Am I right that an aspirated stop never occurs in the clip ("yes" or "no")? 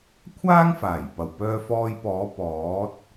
no